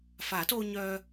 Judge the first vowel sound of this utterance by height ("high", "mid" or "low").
low